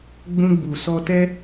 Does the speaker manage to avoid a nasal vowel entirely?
no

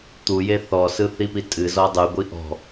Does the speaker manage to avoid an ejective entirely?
no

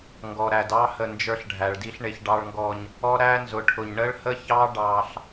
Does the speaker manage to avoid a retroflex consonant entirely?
no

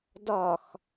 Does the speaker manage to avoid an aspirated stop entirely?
yes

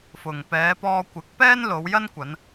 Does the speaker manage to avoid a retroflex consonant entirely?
yes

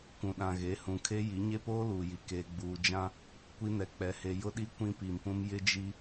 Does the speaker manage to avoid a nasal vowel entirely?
no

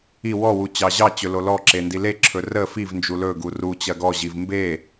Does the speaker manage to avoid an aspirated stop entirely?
no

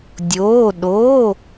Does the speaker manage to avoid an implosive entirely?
no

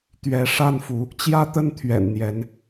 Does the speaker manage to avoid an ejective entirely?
yes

